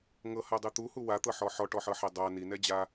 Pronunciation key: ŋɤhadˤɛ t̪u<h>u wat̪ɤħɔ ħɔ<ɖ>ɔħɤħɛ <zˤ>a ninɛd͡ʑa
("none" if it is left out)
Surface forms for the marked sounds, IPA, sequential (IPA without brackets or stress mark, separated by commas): h, ʈ, dˤ